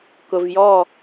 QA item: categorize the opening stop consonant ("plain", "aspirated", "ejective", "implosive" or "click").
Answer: plain